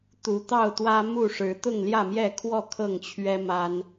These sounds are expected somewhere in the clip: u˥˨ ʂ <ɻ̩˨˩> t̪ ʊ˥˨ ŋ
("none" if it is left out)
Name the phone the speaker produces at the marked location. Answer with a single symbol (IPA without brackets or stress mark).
ɻ̩˨˦